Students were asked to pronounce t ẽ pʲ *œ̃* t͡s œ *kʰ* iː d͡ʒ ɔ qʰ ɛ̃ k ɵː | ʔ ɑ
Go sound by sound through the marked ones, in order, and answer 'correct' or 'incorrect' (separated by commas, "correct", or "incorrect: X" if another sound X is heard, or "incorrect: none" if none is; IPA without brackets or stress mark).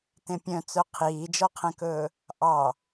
correct, incorrect: qʰ